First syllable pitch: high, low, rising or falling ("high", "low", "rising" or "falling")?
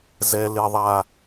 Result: low